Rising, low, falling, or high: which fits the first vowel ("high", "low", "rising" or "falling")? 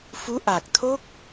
rising